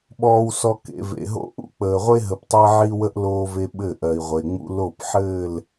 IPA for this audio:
ɓɔː˨wsɔ˨ kḛ˨vḛ˨ɦo̰˦ ʔṵ˦k͡pəː˨ʁʷe˦ ɦə˨ptˤɜ˦ ʕi˦wə˦ʔ loː˦ve˦ ɓɘ˦˨ʔɜ˨i̯ʁʷe˨ŋ͡mṵ˦ lo˦˨pħɘː˦˨l

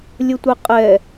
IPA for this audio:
lʲətʷɛqʼɛ

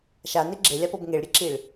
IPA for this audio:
ʃane ɡ͡ǁelʲapɤb ŋeɭɾʲeǁiɭ

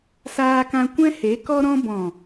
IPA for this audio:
saː˧kã˧ kʷɛ̃˦he˨˦ kɔ˧ɾɔ̃˧bɔ̃˨

